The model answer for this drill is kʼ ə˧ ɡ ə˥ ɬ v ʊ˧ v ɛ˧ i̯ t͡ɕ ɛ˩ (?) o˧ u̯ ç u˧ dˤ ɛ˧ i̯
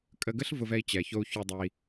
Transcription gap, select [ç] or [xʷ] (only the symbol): ç